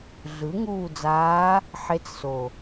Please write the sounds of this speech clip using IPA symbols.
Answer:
ɮ ɯ˩˥ ŋ uː˦˨ d͡z aː˧˥ | ħ e˧˥ t͡s s o˨˩

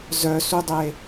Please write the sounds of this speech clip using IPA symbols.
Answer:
z œ s u dˤ e

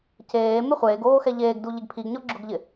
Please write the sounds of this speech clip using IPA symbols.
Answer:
c eː m ɪ χʷ eː ɡ oː x ɛ ʎ eː ɡ d u ʎ ɪ ɡ pʰ i ɡ ɲ ɔ ɡ͡ǁ ʊ ɡ ʎ ɪ

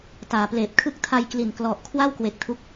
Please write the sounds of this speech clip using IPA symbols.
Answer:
t aː˩˦ p l eː˨˩ p̚ kʰ ɯ˦˥ k̚ tʰ a˧ j k l i˨˩ n k l ɔ˨˩ ʔ kʰ w a˥˩ w k w e˨˩ k̚ tʰ u˦˥ k̚

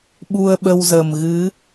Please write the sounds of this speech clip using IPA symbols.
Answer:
ɓ u˧ ə̯ ɓ ə˧ w z ə˨˩ m ɣ ɨ˨˦

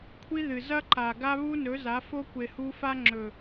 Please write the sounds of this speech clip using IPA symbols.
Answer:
kʷʰ i˦ ð ɨ˨ z ɐ˦ ǃ a˨ ɡ a˦ β u˦ n ɵ˨˦ z a˨˦ f o˦ kʷ e˨ h u˦ f a˦ ŋ͡ǁ ɵ˨

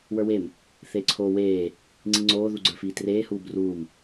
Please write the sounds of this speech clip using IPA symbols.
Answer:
w ə˞ w e m | θ eː ǀʰ oː w eː | ŋ͡ǀ i ŋ͡ǀ oː ð u ɡ͡ǀ ə˞ f iː t r eː h uː b r uː m

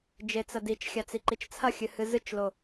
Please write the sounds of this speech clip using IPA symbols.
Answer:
d͡ʒ e t͡s ɐ d i t͡ʃ xʲ a t͡s i ǃ i t͡ʃ t͡sʰ ɐ xʲ ɨ h ɨ z ɨ t͡ʃ l o

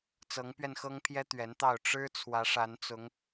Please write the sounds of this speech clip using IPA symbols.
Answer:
t͡s ɤ˨˦ ŋ p ɥ ɛ˧ n x ɤ˦ ŋ pʰ j ɛ˦ t̪ ɥ ɛ˨˦ n t̪ ɑ˥˨ ʊ̯ ʈ͡ʂ ɻ̩˦ t͡sʰ w ä˨˦ ʂ a˨˦ n t͡s ʊ˨˦ ŋ

